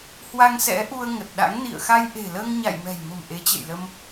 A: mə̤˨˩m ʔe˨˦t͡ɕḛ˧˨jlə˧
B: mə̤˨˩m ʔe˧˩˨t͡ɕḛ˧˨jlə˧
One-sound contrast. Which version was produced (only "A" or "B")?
A